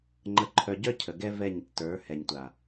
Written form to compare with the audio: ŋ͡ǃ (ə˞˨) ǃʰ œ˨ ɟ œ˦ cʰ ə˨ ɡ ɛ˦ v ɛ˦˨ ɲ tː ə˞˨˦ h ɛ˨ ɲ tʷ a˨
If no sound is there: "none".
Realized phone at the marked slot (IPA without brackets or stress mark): ə˨